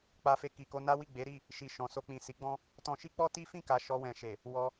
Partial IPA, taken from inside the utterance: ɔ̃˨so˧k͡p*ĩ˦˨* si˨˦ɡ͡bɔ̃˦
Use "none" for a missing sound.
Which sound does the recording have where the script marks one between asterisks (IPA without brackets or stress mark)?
ĩ˨